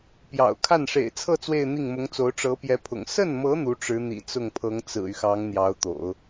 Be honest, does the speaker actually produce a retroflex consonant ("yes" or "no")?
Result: yes